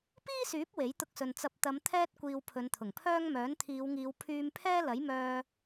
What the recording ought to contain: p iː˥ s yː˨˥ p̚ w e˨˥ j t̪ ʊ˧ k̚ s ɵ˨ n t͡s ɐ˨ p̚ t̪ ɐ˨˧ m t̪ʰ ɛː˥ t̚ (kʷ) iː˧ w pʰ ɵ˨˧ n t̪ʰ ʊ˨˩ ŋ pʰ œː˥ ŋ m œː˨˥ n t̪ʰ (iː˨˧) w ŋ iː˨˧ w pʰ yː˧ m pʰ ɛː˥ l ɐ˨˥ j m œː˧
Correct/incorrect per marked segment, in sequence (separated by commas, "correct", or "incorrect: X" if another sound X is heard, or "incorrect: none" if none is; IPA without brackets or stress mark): correct, correct